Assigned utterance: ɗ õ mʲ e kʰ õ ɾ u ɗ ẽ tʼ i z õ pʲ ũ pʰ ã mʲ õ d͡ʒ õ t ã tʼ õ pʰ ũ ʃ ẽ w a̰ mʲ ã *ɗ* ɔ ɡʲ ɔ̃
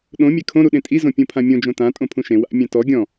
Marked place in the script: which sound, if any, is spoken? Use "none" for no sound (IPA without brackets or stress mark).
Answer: t